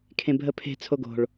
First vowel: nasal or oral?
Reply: nasal